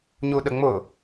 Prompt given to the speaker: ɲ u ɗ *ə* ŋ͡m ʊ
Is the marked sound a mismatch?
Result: no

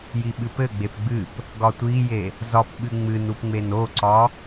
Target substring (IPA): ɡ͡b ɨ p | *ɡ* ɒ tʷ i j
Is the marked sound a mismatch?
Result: no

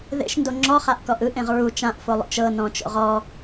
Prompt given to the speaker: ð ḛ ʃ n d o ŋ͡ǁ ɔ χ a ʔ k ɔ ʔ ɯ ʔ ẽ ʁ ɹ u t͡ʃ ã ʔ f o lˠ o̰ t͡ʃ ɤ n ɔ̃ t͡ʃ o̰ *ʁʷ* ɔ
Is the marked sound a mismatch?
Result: yes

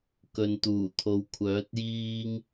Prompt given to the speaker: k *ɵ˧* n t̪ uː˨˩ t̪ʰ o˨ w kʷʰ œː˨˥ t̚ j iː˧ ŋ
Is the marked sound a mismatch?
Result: yes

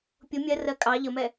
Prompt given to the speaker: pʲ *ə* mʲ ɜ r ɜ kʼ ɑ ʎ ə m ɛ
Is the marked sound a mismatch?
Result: yes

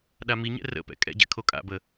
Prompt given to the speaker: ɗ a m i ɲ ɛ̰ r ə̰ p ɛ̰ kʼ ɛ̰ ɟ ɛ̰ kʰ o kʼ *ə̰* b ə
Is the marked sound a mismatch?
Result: yes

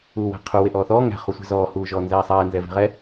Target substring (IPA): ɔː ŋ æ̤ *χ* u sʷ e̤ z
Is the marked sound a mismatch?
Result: no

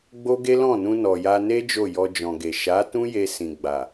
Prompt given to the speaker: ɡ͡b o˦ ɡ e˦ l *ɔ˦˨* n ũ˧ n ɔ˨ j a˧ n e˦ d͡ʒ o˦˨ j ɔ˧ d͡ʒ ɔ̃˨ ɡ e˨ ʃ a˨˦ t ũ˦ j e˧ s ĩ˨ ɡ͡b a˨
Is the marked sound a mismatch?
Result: yes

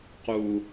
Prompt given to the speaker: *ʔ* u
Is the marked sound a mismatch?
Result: yes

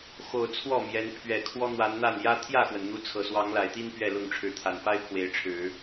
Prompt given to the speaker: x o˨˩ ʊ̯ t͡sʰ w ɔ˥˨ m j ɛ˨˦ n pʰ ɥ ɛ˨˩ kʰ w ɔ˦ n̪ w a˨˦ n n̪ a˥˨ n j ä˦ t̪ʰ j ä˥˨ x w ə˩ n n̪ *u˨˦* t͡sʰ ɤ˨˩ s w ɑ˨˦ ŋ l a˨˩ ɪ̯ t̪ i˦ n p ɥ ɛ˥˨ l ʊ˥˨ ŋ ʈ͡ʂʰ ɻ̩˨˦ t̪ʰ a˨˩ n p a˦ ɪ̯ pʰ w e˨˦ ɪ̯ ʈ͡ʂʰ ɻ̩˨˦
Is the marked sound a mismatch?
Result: no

